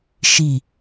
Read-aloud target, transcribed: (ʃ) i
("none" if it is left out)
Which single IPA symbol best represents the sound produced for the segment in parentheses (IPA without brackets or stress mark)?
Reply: ʃ